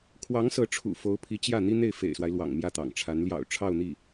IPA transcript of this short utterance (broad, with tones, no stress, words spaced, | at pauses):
kʰwɑ˧˥ŋsɤ˧˥ʈ͡ʂʰṵ˨˩ fo˧˥ʊ̯pʰi˧˥ t͡ɕjä˥˩ n̪i˥n̪e˥˩ɪ̯fḛ˨˩ɪ̯swa˦ɪ̯ lwɑ̰˨˩ŋ mjä˥˩t̪ɑ̰˨˩ŋʈ͡ʂʰa˧˥n ljɑ̰˨˩ʊ̯ʈ͡ʂʰɑ˥˧ʊ̯n̪i˥˩